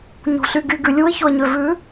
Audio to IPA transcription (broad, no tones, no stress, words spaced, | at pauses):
ɲṳɬyɡy ɡʉlʲuɪ̯çoə̯ ɲøvʉ